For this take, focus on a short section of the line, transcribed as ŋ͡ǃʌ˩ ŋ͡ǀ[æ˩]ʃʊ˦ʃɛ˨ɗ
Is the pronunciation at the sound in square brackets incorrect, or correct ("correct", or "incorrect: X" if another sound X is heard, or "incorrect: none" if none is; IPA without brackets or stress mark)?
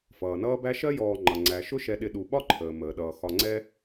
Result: correct